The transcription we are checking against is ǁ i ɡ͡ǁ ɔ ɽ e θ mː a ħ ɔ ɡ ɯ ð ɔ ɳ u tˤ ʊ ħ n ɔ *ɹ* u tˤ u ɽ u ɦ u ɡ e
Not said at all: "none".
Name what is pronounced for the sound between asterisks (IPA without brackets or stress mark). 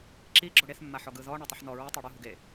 ɹ